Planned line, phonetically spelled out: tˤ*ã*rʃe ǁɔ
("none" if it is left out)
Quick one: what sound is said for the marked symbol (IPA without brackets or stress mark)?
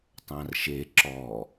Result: ã